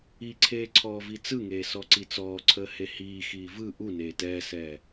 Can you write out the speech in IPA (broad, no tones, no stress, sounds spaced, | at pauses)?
i ǀʰ eː ǀʰ ɔː v i t͡s ɯ ŋ eː s ɔ ǀ i t͡s ɔː ǀʰ əː h e h iː x iː v ɯ ʔ u n eː t ɛː s ɛː